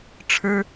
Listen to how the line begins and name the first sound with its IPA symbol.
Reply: ʈ͡ʂʰ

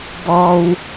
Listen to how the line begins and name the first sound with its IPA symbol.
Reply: b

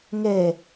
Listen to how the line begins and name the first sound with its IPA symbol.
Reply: ŋ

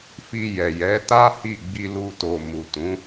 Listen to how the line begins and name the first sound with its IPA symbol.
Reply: f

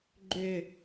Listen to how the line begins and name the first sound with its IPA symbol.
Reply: ɡ͡ǃ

